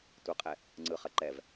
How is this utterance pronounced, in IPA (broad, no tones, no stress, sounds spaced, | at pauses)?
tʷ ɐ qʼ ɛ | ŋ͡ǀ ɯ χ ɐ ǃ ɛ v